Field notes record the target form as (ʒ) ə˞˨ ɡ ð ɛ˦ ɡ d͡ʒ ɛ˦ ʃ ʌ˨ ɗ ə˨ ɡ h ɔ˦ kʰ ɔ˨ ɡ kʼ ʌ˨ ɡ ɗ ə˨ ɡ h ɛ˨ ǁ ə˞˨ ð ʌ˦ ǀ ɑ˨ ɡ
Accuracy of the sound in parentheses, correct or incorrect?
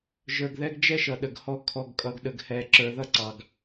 correct